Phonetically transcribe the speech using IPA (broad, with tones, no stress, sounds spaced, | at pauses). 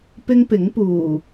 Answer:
p ɪ˥ ŋ p ɪ˨˥ ŋ p uː˨˩